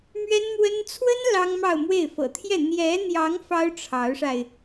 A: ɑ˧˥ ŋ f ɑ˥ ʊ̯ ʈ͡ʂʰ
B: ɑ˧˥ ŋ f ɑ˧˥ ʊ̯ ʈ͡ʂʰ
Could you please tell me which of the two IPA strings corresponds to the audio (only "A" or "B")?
A